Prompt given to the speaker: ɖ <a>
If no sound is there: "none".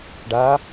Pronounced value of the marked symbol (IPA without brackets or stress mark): a